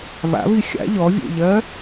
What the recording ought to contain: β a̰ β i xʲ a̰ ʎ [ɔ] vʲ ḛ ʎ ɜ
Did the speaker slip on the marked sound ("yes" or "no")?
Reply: no